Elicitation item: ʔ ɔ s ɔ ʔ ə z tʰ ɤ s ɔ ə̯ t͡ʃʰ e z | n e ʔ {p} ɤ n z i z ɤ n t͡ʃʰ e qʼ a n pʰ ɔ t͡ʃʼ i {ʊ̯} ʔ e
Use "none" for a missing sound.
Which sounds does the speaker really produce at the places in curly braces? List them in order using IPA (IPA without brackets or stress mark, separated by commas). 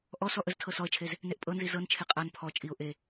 pʼ, ʊ̯